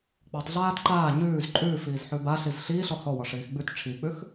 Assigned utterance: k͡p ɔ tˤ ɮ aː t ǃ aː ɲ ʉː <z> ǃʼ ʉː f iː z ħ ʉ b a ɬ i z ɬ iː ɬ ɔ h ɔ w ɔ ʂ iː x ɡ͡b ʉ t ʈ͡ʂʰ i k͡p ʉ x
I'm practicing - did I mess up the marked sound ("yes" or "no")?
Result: no